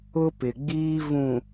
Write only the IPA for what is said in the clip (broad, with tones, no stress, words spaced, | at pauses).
ʊ˦pɪ˨ɡ͡biː˦ vũ˨